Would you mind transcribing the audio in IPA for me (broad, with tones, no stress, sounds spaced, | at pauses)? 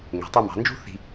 ŋ e̤˩˧ tˤ u˧ m ɑ̤˩˧ n d͡ʒ ṳ˥ θ i̤˧